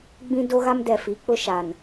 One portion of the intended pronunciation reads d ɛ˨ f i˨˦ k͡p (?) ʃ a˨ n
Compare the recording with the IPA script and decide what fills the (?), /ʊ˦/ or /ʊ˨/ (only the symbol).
ʊ˦